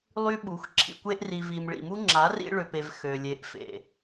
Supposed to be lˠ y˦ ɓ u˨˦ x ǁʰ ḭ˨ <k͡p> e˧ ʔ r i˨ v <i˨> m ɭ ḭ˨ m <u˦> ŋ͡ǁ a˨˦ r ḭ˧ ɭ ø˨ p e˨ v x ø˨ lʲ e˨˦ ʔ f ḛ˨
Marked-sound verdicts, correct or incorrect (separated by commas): incorrect, correct, correct